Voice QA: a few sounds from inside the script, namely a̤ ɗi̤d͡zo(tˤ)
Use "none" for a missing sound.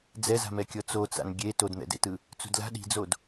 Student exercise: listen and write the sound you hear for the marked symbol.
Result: d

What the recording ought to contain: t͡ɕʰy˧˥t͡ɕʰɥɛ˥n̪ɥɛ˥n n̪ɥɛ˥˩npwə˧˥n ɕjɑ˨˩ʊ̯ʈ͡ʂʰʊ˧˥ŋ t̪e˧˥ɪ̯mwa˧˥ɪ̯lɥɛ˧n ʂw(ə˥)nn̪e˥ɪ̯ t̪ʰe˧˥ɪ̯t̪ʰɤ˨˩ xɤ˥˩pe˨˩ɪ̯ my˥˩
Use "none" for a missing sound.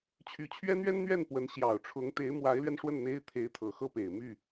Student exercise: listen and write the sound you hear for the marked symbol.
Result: ə˥˩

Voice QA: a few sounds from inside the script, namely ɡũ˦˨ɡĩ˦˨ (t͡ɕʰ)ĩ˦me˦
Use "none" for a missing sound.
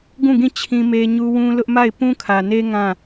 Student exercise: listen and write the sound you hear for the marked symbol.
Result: t͡ɕʰ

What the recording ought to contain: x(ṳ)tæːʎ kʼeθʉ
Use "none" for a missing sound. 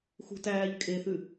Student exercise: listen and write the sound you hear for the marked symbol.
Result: ṳ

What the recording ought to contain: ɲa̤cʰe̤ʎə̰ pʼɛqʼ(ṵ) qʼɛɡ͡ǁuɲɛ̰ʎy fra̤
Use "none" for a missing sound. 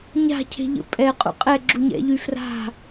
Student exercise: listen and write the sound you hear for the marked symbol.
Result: ṵ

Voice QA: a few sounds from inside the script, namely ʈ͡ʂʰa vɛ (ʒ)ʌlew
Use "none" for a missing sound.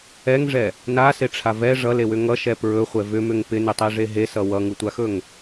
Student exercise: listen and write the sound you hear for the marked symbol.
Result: ʐ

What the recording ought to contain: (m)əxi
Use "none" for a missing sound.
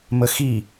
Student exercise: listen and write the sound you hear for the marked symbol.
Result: m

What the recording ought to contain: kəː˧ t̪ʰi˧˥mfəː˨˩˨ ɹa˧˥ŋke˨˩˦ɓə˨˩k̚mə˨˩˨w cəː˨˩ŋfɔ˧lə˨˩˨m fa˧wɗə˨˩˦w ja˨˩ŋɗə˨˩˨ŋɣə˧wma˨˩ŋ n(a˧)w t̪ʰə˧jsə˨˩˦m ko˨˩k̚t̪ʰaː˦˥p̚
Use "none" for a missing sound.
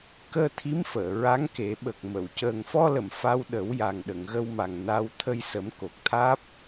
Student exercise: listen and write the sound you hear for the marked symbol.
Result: a˧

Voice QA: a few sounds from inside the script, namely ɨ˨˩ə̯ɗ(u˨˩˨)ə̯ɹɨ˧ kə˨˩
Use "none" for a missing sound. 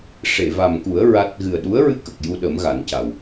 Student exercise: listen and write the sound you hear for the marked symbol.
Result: u˧˥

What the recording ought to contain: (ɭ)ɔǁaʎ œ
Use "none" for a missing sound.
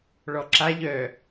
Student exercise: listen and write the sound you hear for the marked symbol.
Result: ɭ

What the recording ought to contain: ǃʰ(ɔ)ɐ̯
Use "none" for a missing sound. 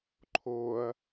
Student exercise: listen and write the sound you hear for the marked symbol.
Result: o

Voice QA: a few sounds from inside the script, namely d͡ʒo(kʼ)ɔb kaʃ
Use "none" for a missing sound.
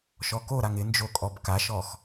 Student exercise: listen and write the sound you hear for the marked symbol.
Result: kʼ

